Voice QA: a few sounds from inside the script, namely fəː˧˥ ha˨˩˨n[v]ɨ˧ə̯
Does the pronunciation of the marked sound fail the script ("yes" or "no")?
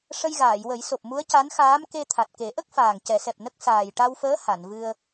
no